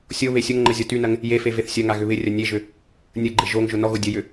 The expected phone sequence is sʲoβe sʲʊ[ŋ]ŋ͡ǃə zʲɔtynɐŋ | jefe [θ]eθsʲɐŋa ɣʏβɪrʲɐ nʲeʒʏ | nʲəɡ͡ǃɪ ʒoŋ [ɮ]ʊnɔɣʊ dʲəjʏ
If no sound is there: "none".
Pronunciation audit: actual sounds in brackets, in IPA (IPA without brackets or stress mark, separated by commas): ŋ, v, ʒ